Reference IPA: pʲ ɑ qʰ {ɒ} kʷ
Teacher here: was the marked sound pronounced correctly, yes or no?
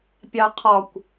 yes